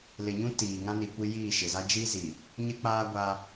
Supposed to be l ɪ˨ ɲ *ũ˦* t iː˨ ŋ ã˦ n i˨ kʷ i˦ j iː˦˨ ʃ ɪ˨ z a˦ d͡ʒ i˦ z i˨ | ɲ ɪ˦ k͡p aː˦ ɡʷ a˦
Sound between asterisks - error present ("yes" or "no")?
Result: no